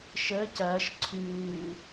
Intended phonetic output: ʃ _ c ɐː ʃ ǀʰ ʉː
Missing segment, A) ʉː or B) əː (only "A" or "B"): B